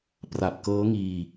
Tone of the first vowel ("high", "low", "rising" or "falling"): low